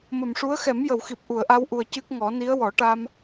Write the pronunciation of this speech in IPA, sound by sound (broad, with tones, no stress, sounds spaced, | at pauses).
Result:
m ə˨˩ m ʂ u˧˥ ə̯ x ɛ˨˩˦ m j ə˨˩˨ w x i˨˩ p̚ ʔ u˨˩˨ ə̯ ʔ a˧ w ʔ u˨˩ ə̯ c ɨ˦˥ k̚ ŋ ɔ˨˩˦ n i˧˥ ə̯ w ɔ˨˩˦ ʈ a˧ m